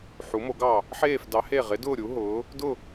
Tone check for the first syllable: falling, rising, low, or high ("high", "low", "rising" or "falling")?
rising